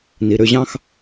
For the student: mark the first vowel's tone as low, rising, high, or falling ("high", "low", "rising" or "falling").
low